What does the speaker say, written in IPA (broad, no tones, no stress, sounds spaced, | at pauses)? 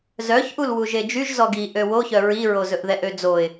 z œ ç ʔ u l w u ʒ e d͡ʒ y ʒ z ɔ ɡ i ʔ ø w o ç œ ɹ i ɹ o z ɵ ʔ ð ɛ ʔ ø d͡z o ɪ̯